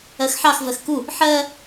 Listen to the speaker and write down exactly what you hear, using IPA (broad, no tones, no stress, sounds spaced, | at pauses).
ɜ x ħ ɑ x v ɜ x k u | ħ ɜ